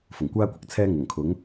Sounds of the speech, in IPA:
fʊ˨˩ŋkʷaː˥kʷɪ˨k̚ t͡sʰɛː˥ ŋʊ˨˩ŋkʰʊ˨˥ŋ

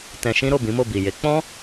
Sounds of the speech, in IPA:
tɛ̃˧ʃĩ˦ ɾo˦˨bĩ˨˦mo˦˨bi˨ je˨˦k͡pɔ̃˦

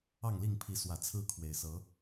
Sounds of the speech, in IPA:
ɑ˥˨ŋli˥˨ŋpʰi˨˦ swä˨˩t͡sʰɹ̩˦kʰwe˨˩ɪ̯ sɤ˨˦

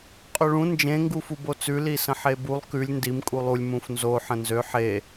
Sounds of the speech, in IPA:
qʼøɭũ nd͡ʒẽ ŋɡufubot͡sʉ lisə̃ħebulˠ kʉlʲ ndim kʼulˠulʲ mũfnzo ħə̃nzø ħe

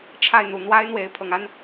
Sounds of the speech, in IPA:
ʈ͡ʂʰa˥˨ɪ̯n̪u˨˩ n̪wa˦ɪ̯ n̪we˨˦ɪ̯ pʰɤ˨˩ŋa˦n

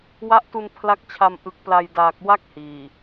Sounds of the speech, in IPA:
wa˦˥ʔtu˧n pʰla˦˥k̚t͡ɕʰa˧m ʔɯ˨˩k̚pla˨˩j daː˨˩k̚ wa˥˩k̚hiː˨˩

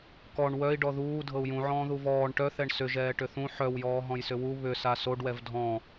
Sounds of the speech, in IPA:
kɔɳ wœi̯ɖɔ ðuː dʱɤu̯jũʕɔ̃ː ðuvɔːɳ ʈœθɛɳ sʏʒɛː ʈʏθũ ħœwjɔː ɦɔ̃jsʏwu βʏsa soɖwɛv dʱɔ̃

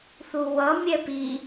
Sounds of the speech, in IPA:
θuwʌ mʲɛpi

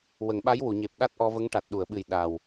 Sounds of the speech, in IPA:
wə˨˩˨ŋɓa˧˥jwu˨˩˨ɲe˨˩p̚ ɗa˦˥t̚ʔɔ˧və˧˥ŋ ʈa˨˩t̚ɗu˨˩˨ə̯ɓɨ˨˩j ɗa˨˩w

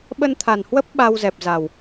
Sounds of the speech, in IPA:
ɓə˧nt̪ʰa˨˩nhwə˦˥p̚ ɓa˧wzɛ˨˩p̚za˨˩w

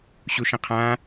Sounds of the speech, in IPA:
ɕuʃə̃qʰã

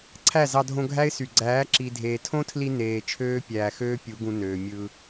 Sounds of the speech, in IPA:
ǀʰæ˦˨ zɑ˧dʱõ˧ ɡʱæ˦ɪ̯sy˨ ɡ͡ǀæː˨˦ ǁi˨dʱeː˨tʰõ˦tʰli˧ neː˨t͡ʃʰøː˦pʲæː˨xøː˦ pʲu˨˦ɡũ˧nøː˨ mʲɯ˧

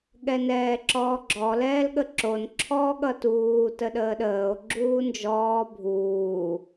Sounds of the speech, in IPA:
ɠɛnɛːǁɔːɡ͡ǁɔ lɛːlɠəǁon ǁʰɔːɠʌtuː təɗəːɗəːo̯ ɡ͡ǁuːnd͡ʒɔː bʱuː

